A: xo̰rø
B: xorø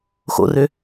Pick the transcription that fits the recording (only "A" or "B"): A